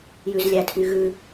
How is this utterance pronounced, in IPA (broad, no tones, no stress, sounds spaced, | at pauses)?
j ʉ z lʲ æ tʰ y ɣ ʉ